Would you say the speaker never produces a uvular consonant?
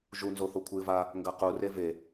no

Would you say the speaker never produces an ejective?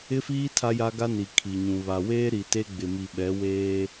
yes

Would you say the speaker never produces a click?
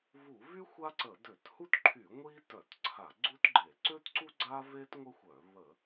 no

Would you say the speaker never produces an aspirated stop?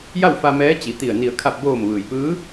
no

